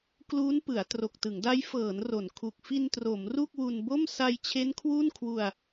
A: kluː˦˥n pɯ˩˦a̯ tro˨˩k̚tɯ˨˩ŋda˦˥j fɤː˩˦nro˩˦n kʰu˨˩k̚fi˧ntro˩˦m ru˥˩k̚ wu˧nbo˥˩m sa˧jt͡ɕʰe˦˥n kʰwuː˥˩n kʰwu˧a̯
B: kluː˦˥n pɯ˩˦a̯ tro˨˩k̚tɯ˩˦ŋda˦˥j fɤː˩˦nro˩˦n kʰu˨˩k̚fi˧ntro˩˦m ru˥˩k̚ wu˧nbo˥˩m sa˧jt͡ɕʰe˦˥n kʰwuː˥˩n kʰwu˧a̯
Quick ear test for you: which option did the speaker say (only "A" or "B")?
B